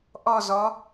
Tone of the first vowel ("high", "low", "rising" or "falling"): falling